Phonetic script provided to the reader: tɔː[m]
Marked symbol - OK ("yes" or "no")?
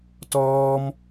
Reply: yes